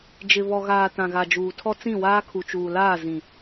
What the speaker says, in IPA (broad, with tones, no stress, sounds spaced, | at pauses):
d͡ʒ ɪ˨ β ɔ˨ ɣ aː˨ t ã˨ ɣ a˨ d͡ʒ uː˨ tʰ ɔ˦ t͡s ĩ˦˨ w aː˦ kʰ u˨ t͡ʃ uː˨ l aː˦˨ z ĩ˨